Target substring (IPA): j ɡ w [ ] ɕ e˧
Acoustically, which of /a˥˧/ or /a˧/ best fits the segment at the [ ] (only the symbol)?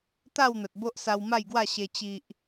a˥˧